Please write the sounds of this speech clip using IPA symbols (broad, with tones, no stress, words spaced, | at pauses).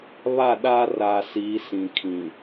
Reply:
βa˦˨ɗaː˦raː˨siː˨˦ sĩ˨kʰĩ˨